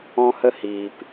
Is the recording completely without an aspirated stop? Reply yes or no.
yes